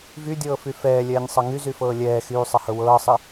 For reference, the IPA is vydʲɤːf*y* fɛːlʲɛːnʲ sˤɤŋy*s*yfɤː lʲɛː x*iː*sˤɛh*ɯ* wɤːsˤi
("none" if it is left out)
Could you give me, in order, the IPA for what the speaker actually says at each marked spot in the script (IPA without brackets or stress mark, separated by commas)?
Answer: y, z, yː, ɤ